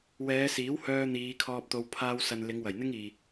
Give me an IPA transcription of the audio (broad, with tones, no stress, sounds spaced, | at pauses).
w ɛː˨˧ s iː˨˥ w h œː˧ n̪ iː˨˧ kʰ ɔː˧ p̚ t̪ o˧ w pʰ aː˧ w s ɐ˨ n l ɪ˨˧ ŋ w ɐ˨˩ j n̪ ɪ˥ ŋ iː˨